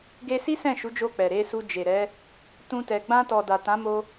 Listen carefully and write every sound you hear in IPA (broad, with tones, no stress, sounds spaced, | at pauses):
ɡ e˧ s i˦ s ɛ̃˦˨ ʃ u˨˦ d͡ʒ o˧ k͡p ɛ˨ ɾ e˧ s u˧ d͡ʒ e˨ ɾ ɛ˨˦ | t ũ˧ t ɛ˨ ɡ͡b ã˧ t ɔ˨ d a˨ t ã˨˦ m o˧